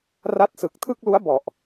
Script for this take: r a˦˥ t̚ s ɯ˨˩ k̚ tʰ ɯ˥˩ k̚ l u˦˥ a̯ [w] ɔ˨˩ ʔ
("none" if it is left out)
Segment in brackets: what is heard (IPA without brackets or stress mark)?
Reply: b